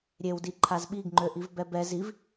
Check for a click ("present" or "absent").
present